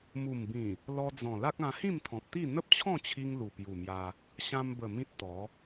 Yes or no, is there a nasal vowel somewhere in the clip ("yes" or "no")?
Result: yes